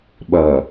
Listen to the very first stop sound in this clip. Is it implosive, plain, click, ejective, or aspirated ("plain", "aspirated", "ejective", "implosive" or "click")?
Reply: implosive